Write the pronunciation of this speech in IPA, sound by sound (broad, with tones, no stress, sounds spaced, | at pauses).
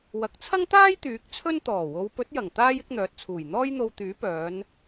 w ɐ˨ k̚ t͡sʰ ɐ˥ ŋ t̪ aː˥ j t̪ yː˨˥ k̚ t͡sʰ ɵ˥ n t̪ ɔː˨˩ w o˨˧ w p ɵ˨˥ t̚ j ɐ˨˩ ŋ t̪ aː˥ j ɪ˨˥ k̚ n̪ œː˨ t̚ t͡sʰ uː˨˩ j n̪ ɔː˥ j n̪ o˧ w t̪ yː˨˥ p œː˨˧ n